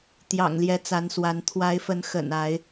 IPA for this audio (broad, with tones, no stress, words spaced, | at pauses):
t̪jɑ̰˨˩ŋljɛ˨˦t͡sa˨˦nswa˨˦n t̪ʰwa˨˦ɪ̯fə˨˦n xə̰˨˩na˨˦ɪ̯